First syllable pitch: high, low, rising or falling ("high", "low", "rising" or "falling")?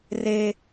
high